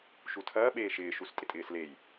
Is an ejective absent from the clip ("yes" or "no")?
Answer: no